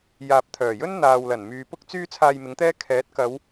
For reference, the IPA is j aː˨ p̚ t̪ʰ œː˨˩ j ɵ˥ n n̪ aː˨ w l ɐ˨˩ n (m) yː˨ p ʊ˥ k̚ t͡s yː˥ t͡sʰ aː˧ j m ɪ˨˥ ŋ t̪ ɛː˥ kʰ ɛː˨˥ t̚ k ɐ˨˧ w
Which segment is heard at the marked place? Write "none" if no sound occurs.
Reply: m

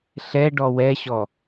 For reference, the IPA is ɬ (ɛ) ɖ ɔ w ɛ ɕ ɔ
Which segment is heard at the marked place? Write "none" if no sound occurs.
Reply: ɛ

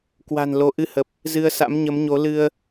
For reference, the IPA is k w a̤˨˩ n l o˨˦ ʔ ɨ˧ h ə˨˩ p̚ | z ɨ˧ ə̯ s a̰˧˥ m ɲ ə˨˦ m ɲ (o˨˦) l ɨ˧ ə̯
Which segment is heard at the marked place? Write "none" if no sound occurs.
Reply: o˨˦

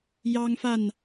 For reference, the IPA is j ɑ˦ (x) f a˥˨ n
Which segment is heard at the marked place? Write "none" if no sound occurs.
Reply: ŋ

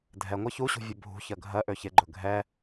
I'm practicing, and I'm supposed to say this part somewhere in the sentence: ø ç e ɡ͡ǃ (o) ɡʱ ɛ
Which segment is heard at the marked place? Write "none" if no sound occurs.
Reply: ɵ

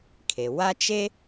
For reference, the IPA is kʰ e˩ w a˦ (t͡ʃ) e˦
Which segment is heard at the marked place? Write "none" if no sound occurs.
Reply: t͡ʃ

